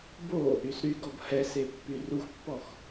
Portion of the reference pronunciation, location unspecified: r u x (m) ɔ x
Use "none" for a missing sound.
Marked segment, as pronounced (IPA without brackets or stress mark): pː